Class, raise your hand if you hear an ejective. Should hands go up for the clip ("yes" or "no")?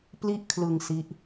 no